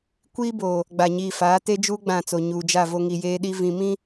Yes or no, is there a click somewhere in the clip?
no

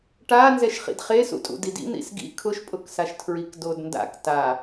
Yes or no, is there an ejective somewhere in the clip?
yes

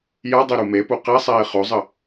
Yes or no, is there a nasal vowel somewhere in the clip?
no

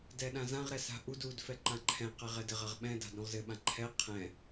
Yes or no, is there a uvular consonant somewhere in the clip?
yes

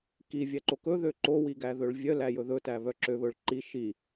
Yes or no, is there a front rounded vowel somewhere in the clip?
yes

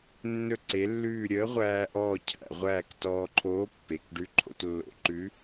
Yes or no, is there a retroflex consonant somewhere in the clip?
yes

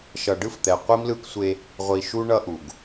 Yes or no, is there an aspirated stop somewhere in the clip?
no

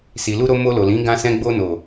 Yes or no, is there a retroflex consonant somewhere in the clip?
no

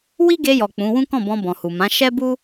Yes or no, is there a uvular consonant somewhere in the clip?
no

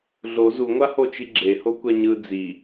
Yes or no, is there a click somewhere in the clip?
yes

